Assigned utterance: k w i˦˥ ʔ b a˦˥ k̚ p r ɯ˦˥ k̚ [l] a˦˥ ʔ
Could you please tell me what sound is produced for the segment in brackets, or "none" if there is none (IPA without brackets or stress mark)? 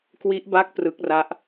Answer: r